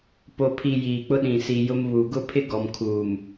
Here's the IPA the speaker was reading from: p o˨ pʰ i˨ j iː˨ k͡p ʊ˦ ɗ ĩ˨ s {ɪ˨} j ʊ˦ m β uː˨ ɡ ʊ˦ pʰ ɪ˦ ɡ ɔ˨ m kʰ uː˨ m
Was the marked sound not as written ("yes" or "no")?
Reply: yes